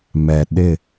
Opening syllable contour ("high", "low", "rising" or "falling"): low